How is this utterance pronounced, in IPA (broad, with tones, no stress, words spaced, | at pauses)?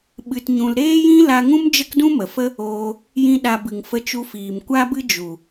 ɓɨ˧tɲũ˧l ɾeː˦jĩ˦ la˧ŋũ˦m d͡ʒə˦kdũ˦mə˨fə˦ | oː˧ | jĩ˧ ɗa˧bɨ˨ŋ fə˧t͡ʃu˧fiː˨m kʷa˦bɨ˦ d͡ʒu˨